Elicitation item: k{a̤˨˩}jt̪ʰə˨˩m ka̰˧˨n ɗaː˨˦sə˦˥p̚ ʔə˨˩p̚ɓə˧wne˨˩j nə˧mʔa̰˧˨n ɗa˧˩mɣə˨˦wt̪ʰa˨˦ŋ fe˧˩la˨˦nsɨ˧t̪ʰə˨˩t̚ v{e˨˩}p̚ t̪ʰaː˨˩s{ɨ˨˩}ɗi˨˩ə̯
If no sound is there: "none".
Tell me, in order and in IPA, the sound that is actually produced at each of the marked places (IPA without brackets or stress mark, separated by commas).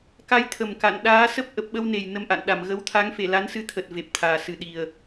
a˨˦, e˨˩, ɨ˨˩